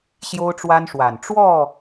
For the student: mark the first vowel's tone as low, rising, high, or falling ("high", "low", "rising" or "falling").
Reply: high